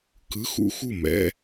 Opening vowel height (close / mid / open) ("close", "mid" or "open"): close